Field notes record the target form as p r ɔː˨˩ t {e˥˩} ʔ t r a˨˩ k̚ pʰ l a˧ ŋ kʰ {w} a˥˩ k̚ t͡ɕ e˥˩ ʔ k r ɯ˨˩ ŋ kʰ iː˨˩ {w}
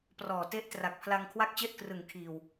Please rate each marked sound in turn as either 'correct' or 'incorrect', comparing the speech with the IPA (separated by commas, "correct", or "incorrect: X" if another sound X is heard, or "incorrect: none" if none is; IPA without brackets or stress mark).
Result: correct, correct, correct